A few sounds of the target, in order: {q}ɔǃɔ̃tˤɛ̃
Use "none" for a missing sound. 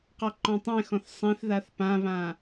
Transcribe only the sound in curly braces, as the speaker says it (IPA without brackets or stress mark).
q